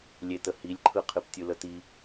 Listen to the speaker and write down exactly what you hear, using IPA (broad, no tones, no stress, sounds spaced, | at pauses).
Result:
lʲ e t ə h i lʲ ǃʰ ɯ qʰ ɨ p tʲ ɯ l ə t i